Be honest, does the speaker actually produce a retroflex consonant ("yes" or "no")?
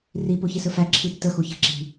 no